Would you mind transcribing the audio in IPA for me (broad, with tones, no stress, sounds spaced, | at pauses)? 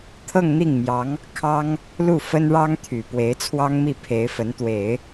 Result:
t̪ʰ ɤ˥˧ ŋ n̪ i˥˩ ŋ m j ɑ˧˥ ŋ | kʰ ɑ˥ ŋ | l u˥˩ f ə˥ n ɻ ɑ˥ ŋ t̪ʰ y˨˩ p w e˧˥ ɪ̯ t͡sʰ w ɑ˥ ŋ m i˥˩ pʰ e˧˥ ɪ̯ f ə˧˥ n t̪ w e˨˩˦ ɪ̯